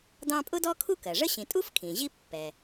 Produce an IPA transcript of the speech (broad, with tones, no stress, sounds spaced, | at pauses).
d ɑ̃˦ pʼ ʊ˥ d ɔ˥ kʰ u˥ k ɜ˩ ʐ ə˥ ɕ ĩ˨ tʼ u˥ f kʰ ĩ˩ ʑ i˥ pː ɛ˩